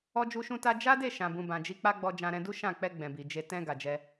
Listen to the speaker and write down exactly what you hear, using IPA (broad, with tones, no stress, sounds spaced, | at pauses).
ɔ˧ d͡ʒ u˧ ʃ ũ˧ t a˦ d͡ʒ a˦ d e˦˨ ʃ ã˨ b ũ˨ b ã˨ d͡ʒ i˧ k͡p a˦ ɡ͡b ɔ˧ d͡ʒ ã˧ ɾ ɛ̃˧ d u˦ ʃ ã˦˨ k͡p ɛ˧ ɡ͡b ɛ̃˨ b i˨ d͡ʒ e˧ t ɛ̃˧ ɡ a˨ d͡ʒ ɛ˧